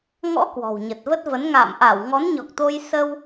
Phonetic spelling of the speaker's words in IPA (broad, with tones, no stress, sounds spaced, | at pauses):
ŋ ɔ̰˧˥ k w ɔ̤˨˩ w ɲ ə˨˩ t̚ v ə˦˥ t̚ v ə˨˦ n ŋ a̰ː˧˨ m ʔ a˧˩ w ŋ ɔ˨˦ n ɲ ɔ˨˩ k̚ t̪ o˧ j s ə˧ w